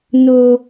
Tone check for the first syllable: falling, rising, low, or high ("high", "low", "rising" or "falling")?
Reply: high